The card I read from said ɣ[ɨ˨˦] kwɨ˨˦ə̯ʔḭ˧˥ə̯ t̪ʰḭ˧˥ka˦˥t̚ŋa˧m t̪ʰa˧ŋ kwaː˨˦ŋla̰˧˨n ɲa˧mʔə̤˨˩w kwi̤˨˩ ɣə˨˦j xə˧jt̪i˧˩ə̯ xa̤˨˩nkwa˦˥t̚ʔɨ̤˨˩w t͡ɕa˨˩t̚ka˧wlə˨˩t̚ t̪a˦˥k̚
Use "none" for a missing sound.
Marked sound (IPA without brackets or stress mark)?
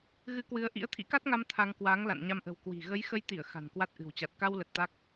ɨ˨˦